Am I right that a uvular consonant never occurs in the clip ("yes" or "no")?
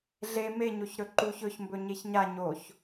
yes